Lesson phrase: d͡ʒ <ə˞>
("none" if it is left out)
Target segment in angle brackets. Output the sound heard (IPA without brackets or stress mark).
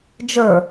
ə˞